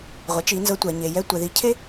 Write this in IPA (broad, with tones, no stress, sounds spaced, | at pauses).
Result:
ʁʷ ɛ˩˧ t͡ʃ i˩˧ n z ɤ˧ tʷ ɛ˩ ɲ e˩ j ɛ˧˥ tʷ ɛ˩ ð i˩˧ cʰ e˥